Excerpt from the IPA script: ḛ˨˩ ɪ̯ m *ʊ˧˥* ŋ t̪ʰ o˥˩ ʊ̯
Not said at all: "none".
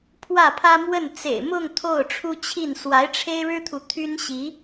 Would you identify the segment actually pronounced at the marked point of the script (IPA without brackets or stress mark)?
ʊ˥˧